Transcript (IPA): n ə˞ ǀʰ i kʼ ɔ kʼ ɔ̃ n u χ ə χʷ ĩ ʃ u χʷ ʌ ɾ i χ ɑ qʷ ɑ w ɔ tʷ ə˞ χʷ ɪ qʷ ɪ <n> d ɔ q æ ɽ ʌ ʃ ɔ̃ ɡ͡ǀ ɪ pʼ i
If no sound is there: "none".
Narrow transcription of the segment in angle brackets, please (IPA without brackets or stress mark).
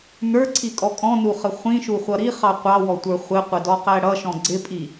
none